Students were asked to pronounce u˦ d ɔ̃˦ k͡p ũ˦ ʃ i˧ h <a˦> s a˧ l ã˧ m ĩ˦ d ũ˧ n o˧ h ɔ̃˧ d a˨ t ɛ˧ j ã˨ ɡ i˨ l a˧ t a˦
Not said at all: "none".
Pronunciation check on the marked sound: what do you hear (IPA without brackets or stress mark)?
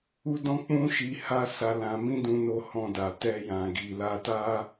a˦